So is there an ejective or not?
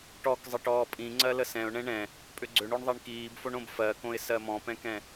yes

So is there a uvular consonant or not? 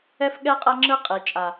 yes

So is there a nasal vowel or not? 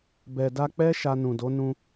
yes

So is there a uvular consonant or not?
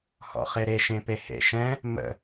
yes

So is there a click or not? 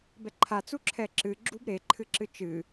yes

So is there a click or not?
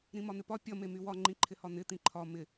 yes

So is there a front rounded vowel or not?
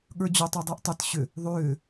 yes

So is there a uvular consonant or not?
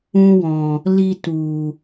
no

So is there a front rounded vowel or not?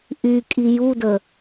yes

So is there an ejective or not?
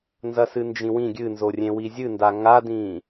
no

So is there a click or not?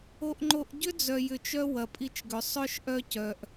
yes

